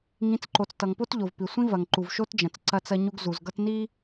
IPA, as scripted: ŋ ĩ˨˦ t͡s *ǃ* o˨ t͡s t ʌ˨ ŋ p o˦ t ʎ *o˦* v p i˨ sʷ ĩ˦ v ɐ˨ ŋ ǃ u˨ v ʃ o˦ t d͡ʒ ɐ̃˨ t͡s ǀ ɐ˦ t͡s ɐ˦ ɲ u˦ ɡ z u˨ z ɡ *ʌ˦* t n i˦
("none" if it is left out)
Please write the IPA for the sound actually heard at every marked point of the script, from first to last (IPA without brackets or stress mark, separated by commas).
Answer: ǃ, o˨, ʌ˦